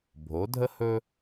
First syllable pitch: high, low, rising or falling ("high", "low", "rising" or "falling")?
rising